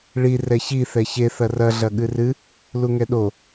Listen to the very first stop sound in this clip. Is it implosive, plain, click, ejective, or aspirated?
implosive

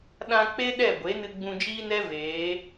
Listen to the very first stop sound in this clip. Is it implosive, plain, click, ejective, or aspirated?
implosive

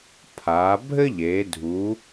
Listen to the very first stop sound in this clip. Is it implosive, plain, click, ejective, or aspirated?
aspirated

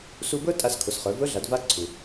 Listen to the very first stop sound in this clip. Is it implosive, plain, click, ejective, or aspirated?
plain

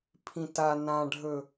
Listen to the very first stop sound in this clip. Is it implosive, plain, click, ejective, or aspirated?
aspirated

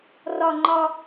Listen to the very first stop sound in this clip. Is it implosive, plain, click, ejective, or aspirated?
click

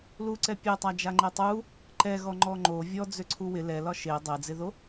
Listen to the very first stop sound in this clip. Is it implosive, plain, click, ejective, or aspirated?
click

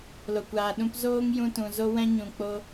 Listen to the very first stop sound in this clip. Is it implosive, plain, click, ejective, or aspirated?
plain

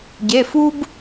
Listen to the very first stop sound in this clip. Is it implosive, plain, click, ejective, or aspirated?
plain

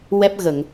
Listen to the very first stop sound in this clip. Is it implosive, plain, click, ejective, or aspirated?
plain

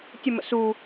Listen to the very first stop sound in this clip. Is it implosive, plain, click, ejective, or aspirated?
plain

